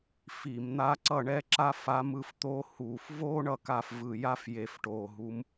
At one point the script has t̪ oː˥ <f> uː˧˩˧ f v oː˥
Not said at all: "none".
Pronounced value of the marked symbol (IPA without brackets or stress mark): h